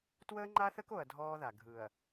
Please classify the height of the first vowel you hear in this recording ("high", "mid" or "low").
mid